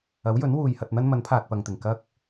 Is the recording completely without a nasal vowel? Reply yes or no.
yes